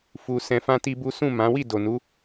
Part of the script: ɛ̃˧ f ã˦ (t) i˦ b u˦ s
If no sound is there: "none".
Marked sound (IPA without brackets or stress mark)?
t